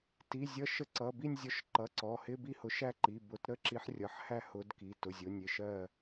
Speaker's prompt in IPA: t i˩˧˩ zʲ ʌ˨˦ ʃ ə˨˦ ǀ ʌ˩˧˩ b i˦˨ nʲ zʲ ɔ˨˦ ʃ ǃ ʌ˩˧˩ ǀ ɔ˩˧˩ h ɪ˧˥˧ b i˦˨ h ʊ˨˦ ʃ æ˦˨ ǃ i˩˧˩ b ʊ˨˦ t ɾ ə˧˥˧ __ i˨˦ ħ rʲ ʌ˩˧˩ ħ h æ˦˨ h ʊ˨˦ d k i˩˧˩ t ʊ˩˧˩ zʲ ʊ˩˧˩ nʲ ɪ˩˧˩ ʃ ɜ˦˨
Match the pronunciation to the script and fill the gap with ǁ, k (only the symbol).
ǁ